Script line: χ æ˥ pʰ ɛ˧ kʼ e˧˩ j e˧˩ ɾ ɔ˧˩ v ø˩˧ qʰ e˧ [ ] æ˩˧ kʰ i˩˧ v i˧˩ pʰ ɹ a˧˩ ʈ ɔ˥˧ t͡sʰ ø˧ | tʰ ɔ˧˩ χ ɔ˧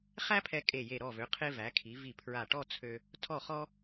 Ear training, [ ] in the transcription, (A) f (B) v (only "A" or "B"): B